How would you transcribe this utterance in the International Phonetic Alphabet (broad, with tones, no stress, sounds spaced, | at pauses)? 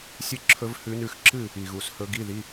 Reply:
sʲ ɨ˥˧ ǁʰ ɵ˦˥ v h ʉ˦˥ n ʉ˦˥ x ǁ ɨ˥˧ | i˨ ɣ u˨ s h ɵ˦˥ ɡ i˧˥˧ ð i˧˥˧